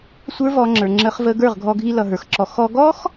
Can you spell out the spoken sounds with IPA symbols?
sʷ ə˞˦ v ɔ˧ ŋ͡ǁ ə˞˨ ŋ͡ǁ ə˧ χ v ə˧ ɡ ə˞˦˨ ʁ ɡʱ ɔ˧ ɡʱ i˧ l ʌ˨ ɦ ə˞˨ x ǁ ɔ˧ x ɔ˧ ɡ ɔ˦ x

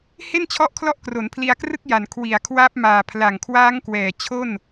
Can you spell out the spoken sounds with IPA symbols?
h e˥˩ n t͡ɕʰ ɔ˦˥ ʔ kʰ l ɔ˦˥ ʔ k r o˩˦ n pʰ l i˧ a̯ k r ɯ˥˩ k̚ j a˨˩ n kʰ w i˨˩ a̯ kʰ w aː˦˥ p̚ m aː˨˩ pʰ l a˨˩ ŋ kʰ w aː˦˥ ŋ k w ɛː˨˩ t͡ɕʰ o˥˩ n

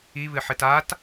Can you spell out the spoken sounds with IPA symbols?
i β ɨ ħ ɨ t a t

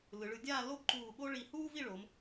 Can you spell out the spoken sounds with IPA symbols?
l ɯ˩˧ ɭ ɯ˩˧ dʲ aː˥˧ l o˥ b ǃ uː˧˩ ɠ o˥ ɭ i˧˩ h uː˥ v i˥˧ ɭ o˩˧ m

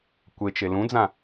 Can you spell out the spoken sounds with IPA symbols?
kʷ e t͡ʃ e l ũ d͡z ã

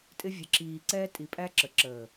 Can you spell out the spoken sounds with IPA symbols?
tʼ ɪ˧ vʲ ə˨ ǁ iː˨ ǀ ɛː˧ tʼ i˨ pʼ æ˧ ǁ ə˨ ǁ əː˨

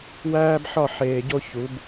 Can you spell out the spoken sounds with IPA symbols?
w æː˦ b ħ ɒ˦˨ ħ eː˨ ɟ o˦ ç u˨˦ b

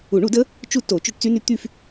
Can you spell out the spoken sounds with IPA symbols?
u˨˩˦ ɳ u˨˩˦ d ə˦˥ | t͡ʃ u˦˨ t o˨˩˦ t͡ʃ o˦˨ ʈ t͡s y˦˥ n y˦˥ t̪ y˦˨ f

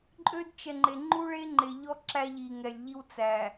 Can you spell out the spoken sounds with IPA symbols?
ǃʼ ø˦ d t͡ʃ ɛ˨ ŋ͡ǃ e˨ ŋ͡ǃ u˦ ɭ e˦ ŋ͡ǃ e˨ ʎ ɔ˦ ǁ æ˦ ʎ i˨ ŋ ɛ˨ lʲ ʎ i˦ w t͡s æ˨

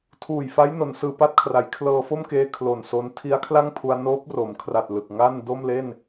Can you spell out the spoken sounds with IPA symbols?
tʰ uː˨˩ j f a˦˥ j n o˩˦ n s ɯː˨˩ p a˥˩ t̚ kʰ r a˩˦ j kʰ l ɤː˧ f o˥˩ m k eː˧ kʰ l o˨˩ n s o˦˥ n tʰ i˦˥ a̯ kʰ l a˥˩ ŋ pʰ u˧ a̯ n oː˦˥ p̚ r o˩˦ m kʰ r a˨˩ t̚ l ɯ˨˩ k̚ ŋ a˥˩ n d o˥˩ m l e˥˩ n

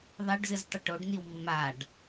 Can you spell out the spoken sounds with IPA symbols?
ðˤ ɛ ɖ z ɨ z tˤ ʏ ʈ o ɖ n̪ i w mː a ɖ

